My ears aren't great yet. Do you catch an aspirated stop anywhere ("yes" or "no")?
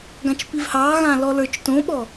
no